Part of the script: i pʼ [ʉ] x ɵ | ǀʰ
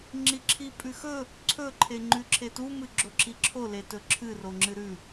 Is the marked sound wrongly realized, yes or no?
no